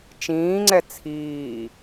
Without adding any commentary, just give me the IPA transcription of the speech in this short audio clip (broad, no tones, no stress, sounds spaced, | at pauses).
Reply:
t͡ʃ ĩː ŋ͡ǀ ɛ t͡sʰ iː